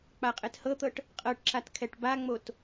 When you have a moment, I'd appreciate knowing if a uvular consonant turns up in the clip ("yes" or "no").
yes